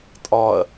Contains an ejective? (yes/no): yes